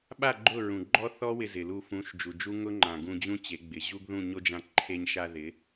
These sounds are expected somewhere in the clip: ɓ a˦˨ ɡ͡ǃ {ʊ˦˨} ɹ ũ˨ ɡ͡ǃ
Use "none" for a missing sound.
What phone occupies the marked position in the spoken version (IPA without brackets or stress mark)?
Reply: ʊ˦˨